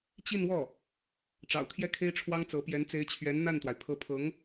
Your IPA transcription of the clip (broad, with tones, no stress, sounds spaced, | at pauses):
t͡ɕ i˥˧ n w ɔ˥˩ | ʈ͡ʂ ɑ̰˨˩ ʊ̯ t̪ʰ j ɛ˥ kʰ e˥ ɪ̯ ʈ͡ʂʰ w ɑ˥ ŋ t͡s ɤ˧˥ p j ɛ˧˥ n t͡s e˧˥ ɪ̯ t͡ɕʰ ɥ ɛ˧˥ n n̪ a˥˩ n t̪ w a˩ ɪ̯ pʰ ɤ˧˥ pʰ ɤ˧˥ ŋ